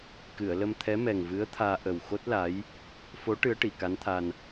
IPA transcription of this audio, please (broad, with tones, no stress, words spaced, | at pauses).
kɨ˨˩˨ə̯lə˧m t̪ʰɛ˧˥mɛ˨˩ŋvɨ˧˥ə̯t̪ʰaː˧ ʔə˨˩w xo˦˥t̚la˧˥j | fo˧˥ ʈɨ˧˥ə̯ʈi˨˩˨ka˧˥nt̪ʰa˧n